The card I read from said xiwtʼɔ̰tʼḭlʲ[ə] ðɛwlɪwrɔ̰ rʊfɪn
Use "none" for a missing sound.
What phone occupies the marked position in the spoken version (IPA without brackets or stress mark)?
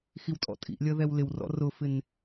ə